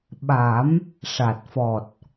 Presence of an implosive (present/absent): present